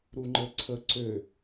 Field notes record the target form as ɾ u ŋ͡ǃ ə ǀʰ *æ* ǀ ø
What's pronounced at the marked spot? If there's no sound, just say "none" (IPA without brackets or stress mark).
ə